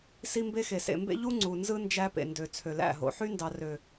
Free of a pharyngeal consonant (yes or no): no